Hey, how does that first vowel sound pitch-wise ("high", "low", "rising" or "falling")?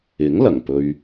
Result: rising